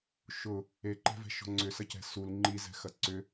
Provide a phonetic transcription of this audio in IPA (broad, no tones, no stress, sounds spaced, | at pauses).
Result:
ʃ ʊ | e ǃ ɛ̤ v ɛ̤ ʃ ɔ̤ ŋ͡ǀ ʏ s ɐ c ɛ̤ s u l ŋ͡ǃ i z ɛ̤ x ɐ ǀ ʏ